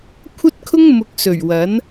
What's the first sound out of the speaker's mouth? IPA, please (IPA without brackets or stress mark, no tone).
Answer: kʷʰ